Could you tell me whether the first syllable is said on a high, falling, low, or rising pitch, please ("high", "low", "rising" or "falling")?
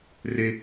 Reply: high